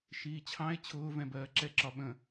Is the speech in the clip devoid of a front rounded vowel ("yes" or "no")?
yes